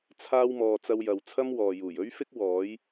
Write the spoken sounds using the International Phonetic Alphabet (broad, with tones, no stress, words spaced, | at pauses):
t͡sʰaː˥wmɔː˧ t͡sɐ˥wjɐ˧w t͡sʰɐ˥mwɔː˨juː˨˩j ɵ˥ɥfɪ˥k̚ wɔː˨˥j